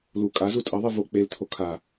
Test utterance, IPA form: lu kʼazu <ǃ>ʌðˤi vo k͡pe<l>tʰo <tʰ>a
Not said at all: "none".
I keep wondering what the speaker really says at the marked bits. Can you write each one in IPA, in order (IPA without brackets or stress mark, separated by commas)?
tʼ, l, kʰ